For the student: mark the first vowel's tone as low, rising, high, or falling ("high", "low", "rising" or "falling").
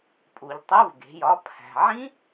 low